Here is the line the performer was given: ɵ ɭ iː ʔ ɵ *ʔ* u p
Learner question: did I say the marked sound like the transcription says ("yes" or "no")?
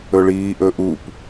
yes